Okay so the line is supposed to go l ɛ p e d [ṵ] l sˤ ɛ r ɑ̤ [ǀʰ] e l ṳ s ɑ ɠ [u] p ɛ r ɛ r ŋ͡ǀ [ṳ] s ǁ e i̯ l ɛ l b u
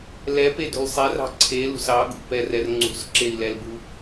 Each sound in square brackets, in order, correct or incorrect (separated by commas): incorrect, correct, incorrect, correct